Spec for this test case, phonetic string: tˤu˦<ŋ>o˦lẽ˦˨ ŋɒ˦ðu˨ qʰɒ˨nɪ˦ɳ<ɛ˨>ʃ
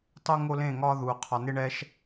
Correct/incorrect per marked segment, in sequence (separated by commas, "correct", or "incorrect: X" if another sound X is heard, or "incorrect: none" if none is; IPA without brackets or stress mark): correct, incorrect: ɛ˦